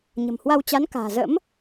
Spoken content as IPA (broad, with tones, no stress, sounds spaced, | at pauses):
ɲ ə̤˨˩ m h w a˧ w t͡ɕ a˨˦ n k a̤ː˨˩ z ə̰˧˥ m